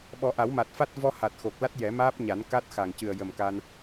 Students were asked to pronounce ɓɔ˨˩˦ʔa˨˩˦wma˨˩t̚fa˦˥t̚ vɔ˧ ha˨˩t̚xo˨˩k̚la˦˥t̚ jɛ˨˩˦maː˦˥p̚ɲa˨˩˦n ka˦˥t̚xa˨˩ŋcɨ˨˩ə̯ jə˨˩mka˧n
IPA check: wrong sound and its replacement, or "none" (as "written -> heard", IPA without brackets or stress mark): none